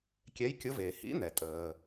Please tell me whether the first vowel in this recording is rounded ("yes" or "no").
no